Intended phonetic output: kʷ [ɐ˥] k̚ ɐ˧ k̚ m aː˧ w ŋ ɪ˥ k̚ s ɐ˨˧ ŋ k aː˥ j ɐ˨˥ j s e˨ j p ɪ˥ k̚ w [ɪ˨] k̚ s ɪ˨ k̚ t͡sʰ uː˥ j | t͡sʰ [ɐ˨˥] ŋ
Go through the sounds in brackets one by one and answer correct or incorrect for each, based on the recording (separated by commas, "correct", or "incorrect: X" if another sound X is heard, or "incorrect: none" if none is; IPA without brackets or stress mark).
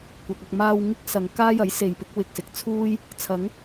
incorrect: ɐ˨, correct, correct